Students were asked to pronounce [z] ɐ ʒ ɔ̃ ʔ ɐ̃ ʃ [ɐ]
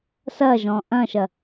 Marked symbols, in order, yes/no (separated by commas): no, yes